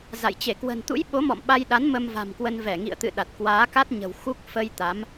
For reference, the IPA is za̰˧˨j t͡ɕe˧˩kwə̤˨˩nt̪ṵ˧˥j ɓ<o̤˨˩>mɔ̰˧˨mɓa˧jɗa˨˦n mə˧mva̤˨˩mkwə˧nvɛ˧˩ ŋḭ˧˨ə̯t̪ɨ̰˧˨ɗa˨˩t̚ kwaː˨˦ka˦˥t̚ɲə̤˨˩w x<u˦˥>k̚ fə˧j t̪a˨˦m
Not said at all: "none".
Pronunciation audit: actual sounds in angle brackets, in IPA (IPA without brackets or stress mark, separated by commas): o˨˦, u˦˥